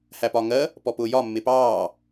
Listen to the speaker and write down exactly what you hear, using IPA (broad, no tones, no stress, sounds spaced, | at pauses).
h æ p ɒː ŋ ɜ | p ɔ p ʊː j ɒ mː ɪ p ɑː